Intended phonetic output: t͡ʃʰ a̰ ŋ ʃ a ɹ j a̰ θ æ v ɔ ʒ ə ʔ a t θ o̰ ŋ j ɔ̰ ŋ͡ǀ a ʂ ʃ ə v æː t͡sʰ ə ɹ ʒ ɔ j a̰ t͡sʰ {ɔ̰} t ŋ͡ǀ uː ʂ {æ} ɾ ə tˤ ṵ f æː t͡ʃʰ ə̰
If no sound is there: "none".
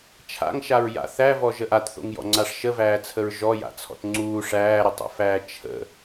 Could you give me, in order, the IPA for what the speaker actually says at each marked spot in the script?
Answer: ɔ̰, æː

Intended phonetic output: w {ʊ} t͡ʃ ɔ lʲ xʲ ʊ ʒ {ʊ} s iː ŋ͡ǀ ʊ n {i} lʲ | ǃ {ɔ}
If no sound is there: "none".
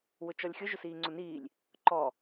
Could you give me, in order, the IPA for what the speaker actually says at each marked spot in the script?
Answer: ʊ, ʊ, iː, ɔ

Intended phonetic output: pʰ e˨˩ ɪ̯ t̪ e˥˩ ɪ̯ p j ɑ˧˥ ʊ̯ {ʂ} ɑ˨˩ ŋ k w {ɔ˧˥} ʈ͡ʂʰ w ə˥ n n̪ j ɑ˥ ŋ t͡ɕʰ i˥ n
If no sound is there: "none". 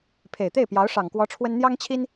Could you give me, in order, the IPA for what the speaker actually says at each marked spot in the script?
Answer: ʂ, ɔ˧˥

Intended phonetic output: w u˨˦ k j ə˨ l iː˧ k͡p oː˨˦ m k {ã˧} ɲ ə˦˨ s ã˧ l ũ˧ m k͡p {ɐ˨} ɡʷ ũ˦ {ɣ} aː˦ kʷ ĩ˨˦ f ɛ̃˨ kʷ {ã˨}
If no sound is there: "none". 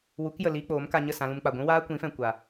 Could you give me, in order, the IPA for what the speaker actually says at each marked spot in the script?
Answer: a˧, a˨, w, a˨

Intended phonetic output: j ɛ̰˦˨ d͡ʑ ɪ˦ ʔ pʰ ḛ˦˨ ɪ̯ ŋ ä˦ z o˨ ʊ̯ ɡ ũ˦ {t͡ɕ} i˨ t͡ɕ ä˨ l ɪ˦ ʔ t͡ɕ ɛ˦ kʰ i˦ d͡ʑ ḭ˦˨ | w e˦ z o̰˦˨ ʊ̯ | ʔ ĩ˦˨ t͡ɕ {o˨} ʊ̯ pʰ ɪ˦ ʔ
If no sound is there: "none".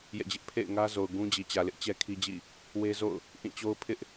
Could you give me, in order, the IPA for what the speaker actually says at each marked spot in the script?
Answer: d͡ʑ, o˦

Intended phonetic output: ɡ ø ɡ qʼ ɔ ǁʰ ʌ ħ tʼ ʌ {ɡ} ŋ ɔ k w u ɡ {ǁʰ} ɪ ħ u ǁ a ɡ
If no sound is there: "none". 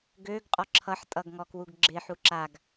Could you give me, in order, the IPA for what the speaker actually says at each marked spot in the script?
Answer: ɡ, ɡ͡ǁ

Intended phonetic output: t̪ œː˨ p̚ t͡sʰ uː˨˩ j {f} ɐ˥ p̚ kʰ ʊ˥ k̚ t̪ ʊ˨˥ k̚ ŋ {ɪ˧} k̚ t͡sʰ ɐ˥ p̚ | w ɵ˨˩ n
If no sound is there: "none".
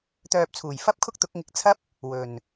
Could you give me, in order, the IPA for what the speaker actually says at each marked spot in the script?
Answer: f, ɪ˧

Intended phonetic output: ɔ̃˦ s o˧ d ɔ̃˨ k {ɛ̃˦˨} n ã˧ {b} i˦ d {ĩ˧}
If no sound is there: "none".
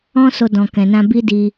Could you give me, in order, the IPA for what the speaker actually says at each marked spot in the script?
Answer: ɛ̃˨, b, i˧

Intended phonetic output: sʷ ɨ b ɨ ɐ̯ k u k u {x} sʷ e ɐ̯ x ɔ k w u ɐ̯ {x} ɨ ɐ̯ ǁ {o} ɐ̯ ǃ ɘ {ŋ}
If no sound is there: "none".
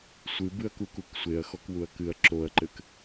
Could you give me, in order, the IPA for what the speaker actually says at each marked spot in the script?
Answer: k, k, o, k

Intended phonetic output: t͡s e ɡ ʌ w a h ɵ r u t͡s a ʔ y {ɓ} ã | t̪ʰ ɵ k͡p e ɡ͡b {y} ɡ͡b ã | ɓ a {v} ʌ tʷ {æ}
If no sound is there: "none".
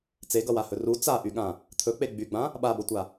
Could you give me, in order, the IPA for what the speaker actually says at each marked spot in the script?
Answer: ɠ, y, b, a

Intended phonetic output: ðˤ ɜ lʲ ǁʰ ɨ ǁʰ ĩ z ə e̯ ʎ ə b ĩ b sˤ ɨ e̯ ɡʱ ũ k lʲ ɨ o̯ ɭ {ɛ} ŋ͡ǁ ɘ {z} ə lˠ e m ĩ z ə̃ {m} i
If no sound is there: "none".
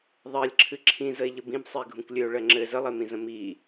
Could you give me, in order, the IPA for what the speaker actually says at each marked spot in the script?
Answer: ɜ, z, m

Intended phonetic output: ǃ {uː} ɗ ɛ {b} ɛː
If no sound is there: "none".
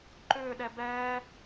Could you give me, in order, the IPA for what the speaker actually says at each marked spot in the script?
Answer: ʏː, b

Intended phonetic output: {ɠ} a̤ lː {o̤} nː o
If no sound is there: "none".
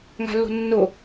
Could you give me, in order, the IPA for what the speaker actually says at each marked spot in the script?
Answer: ŋ, o̤

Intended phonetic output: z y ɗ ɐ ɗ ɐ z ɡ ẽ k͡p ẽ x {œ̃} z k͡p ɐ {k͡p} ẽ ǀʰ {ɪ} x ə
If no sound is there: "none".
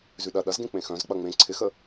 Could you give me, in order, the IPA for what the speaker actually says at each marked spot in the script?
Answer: œ̃, ŋ͡m, ɪ

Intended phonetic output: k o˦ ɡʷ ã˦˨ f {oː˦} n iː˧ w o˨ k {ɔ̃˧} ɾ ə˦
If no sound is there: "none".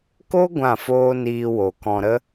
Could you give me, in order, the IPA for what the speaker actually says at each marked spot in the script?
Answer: oː˦, ɔ̃˧

